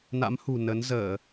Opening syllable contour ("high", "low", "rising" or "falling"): rising